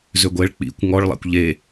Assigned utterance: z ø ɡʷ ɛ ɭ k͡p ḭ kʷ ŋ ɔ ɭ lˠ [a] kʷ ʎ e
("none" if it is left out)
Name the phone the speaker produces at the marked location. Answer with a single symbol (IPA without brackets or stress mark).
a̰